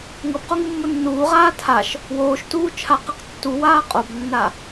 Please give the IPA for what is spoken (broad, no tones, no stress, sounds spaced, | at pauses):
ŋ ɤ b q o ŋ u mː o nː uː ʁ aː tʰ a ʃ | w oː ʃ t uː t͡ʃʰ a q ɯ q tː u w aː qʼ o b nː a